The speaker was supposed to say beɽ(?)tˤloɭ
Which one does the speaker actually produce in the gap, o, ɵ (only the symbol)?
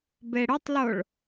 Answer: ɵ